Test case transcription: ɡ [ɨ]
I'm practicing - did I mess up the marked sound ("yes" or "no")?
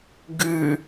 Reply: no